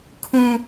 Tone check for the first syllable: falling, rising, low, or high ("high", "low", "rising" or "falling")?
high